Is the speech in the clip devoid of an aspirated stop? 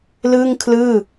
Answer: no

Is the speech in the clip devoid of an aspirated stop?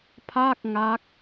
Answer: no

